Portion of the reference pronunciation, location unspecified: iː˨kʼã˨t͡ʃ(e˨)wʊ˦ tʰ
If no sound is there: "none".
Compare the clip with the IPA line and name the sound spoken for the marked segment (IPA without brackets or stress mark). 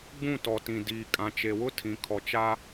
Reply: e˨